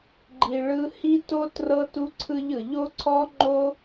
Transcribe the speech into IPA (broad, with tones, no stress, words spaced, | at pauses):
ɡ͡ǃi˨ ɭɯ˧hi˦to˦ trɤ˦tu˦ǀʰɯ˦ʎɯ˨ ʎo˦ǀʰɔ˦ŋ͡ǃo˦